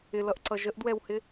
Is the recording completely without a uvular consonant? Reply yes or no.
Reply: yes